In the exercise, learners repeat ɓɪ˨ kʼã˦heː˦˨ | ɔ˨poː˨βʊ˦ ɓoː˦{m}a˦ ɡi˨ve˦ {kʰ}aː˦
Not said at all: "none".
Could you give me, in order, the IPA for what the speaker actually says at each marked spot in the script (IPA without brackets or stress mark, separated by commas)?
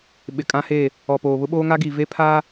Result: ŋ, pʰ